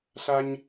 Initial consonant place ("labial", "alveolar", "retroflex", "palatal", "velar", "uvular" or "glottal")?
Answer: alveolar